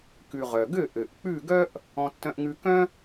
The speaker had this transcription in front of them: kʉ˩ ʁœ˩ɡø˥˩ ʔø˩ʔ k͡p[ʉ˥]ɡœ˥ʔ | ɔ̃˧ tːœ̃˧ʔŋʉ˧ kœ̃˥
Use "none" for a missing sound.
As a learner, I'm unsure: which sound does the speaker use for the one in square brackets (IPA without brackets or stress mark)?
ʉ˥˩